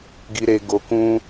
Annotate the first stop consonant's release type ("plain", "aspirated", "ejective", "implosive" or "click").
plain